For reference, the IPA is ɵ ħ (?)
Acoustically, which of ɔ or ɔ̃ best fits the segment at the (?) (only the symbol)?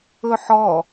ɔ